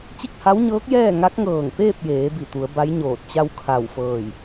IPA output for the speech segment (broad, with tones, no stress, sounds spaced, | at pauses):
t͡ɕ i˥˨ k̚ h a˧˥ w ɲ ɤː˧˥ k̚ j ɛː˥˨ ŋ a˧˥ k̚ ŋ ɤː˧˩ ŋ p eː˥˨ p̚ j eː˩˧ b i˧˩ t̪ u˩˧ ə̯ b a˧˥ j ɲ oː˧˩ t̚ t͡ɕ a˥˨ w kʰ a˧˩ w f ɤː˧˩ j